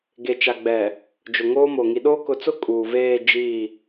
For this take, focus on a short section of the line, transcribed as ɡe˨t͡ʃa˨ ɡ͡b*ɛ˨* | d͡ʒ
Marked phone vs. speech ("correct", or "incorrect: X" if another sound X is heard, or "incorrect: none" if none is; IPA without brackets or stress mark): correct